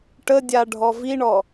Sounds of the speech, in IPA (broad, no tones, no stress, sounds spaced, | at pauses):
ʈ ə dʲ a ɖʱ ɔ v i ɳ ɔ